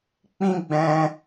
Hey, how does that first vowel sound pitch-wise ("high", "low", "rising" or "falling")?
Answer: high